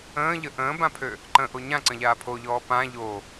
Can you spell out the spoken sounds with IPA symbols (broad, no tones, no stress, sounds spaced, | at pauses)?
ə̃ː ʎ ə ʔ ə̃ː b ã pʰ ø | ǃ ə̃ ʔ o ɲ ã ǀ ə̃ ʎ aː pʰ o ʎ ɔː p ã ʎ o